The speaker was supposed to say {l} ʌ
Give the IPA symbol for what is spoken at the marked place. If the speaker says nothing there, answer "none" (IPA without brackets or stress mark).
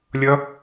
lʲ